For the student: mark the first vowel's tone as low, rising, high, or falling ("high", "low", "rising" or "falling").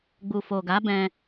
low